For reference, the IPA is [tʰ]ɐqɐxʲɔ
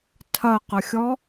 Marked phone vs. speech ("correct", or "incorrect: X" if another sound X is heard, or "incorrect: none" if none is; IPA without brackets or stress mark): correct